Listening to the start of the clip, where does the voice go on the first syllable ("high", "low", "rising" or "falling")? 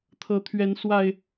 rising